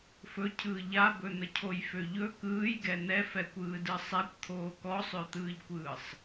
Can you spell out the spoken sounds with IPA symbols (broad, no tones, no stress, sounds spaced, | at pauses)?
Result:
f ɵ cʰ ɯː ʎ a b ɵ n̪ ə cʰ o j f ø ʎ ɵ k ɯː j ɡ ɛ n̪ ɛ f ɛ kʷ ɯː d ɯ sˤ ɛ kʷ t̪ʰ oː k ɔ sˤ ø t̪ ɯː ʎ kʷ ɯː sˤ